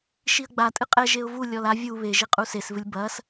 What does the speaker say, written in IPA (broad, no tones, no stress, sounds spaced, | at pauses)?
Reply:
ʃ i ə̯ ɡ͡b a tʼ ɨ qʼ ɛ ʒ e ʊ̯ v u lʲ ɔ l a vʲ u β e ʒ i qʼ u s e s v ɨ lʲ b ɐ s